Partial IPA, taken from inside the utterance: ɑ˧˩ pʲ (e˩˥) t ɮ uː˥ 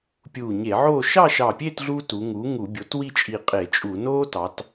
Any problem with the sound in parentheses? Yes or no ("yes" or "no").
yes